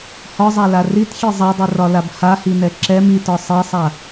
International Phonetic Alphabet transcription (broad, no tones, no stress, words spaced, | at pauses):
hɒzˤala ritxʲe zˤadˤirɒlab hahinɛ ǁɛm itɒ sˤesˤa